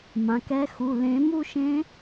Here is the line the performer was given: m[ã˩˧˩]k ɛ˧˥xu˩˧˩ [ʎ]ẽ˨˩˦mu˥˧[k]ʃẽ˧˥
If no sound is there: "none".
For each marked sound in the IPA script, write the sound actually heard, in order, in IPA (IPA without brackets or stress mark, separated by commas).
ã˩˧˩, l, none